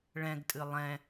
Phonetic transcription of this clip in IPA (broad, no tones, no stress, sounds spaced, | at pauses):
ɭ ɛ̃ ɡ tʼ ɨ lˠ ɛ̃